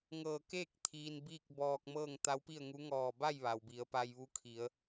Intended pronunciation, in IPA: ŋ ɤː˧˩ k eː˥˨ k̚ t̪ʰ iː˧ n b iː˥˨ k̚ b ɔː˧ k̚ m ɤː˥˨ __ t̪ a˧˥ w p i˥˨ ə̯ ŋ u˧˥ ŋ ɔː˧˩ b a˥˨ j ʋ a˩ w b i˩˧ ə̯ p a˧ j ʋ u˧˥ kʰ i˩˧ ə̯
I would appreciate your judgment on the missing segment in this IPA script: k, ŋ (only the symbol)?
ŋ